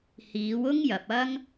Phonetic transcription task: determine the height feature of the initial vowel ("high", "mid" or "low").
high